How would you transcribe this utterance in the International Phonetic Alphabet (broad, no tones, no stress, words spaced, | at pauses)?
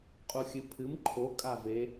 qʼuxʲɨpʰɨm ǃʰokʼa ve